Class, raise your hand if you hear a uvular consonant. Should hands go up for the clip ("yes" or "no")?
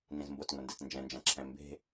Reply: no